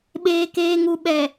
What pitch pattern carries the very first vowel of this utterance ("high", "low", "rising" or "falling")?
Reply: low